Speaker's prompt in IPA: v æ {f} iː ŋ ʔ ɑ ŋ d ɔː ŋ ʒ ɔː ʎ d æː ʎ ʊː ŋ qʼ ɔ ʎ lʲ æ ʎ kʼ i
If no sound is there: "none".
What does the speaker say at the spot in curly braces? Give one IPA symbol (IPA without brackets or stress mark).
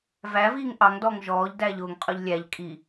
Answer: v